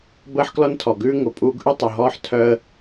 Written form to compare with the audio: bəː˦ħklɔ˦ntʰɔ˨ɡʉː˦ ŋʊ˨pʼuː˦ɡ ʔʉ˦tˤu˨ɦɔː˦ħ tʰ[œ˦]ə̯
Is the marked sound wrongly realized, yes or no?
no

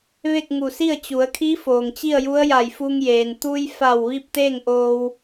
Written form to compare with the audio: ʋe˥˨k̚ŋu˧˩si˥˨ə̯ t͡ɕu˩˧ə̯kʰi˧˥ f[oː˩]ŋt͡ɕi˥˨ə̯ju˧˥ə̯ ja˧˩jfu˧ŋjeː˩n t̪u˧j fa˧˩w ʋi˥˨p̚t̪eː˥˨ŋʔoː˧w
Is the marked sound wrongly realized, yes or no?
no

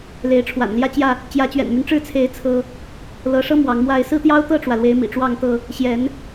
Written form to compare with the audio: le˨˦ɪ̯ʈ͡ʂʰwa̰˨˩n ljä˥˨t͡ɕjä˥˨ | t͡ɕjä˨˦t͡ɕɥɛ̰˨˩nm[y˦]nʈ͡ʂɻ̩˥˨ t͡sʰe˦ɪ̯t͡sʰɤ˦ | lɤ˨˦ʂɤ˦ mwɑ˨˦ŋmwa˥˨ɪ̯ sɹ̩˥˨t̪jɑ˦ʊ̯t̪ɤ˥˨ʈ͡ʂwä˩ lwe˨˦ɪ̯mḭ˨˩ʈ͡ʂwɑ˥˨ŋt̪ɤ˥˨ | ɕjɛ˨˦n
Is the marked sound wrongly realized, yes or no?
no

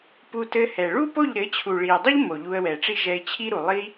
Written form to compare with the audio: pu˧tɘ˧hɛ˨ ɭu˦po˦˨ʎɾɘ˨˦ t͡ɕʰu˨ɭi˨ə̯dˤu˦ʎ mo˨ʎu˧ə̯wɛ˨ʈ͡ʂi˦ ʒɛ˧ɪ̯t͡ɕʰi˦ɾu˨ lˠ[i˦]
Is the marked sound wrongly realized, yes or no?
yes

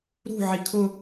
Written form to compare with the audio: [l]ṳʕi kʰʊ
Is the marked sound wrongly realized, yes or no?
yes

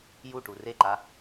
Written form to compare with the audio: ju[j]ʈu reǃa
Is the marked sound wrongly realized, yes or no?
yes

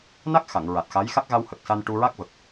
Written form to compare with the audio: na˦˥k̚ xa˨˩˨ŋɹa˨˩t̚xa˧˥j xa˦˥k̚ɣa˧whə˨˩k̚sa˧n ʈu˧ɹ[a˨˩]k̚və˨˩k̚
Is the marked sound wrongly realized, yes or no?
yes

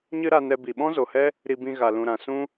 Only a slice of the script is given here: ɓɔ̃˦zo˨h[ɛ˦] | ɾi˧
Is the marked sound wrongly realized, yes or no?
no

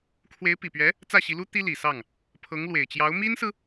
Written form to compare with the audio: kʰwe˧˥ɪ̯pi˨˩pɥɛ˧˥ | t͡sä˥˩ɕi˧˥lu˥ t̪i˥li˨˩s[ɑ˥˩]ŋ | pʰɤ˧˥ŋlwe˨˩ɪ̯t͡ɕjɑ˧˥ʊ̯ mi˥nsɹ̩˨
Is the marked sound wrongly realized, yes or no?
no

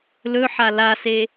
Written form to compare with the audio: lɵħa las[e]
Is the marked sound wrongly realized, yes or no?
no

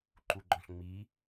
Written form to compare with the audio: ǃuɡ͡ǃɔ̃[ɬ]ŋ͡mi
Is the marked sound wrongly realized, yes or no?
no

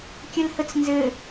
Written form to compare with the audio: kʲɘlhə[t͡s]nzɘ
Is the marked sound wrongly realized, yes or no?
no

